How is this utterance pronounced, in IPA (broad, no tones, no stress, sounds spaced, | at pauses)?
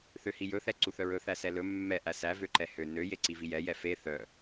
θ ø h i j ɵ θ ɛ ǀ u θ œ ɹ ɵ θ æ s ɛ l ɵ mː ɛ ʔ æ s æ v ø ǃ ɛ h ø n ø j e ǀ i v i j ɛ j ɛ f e θ œ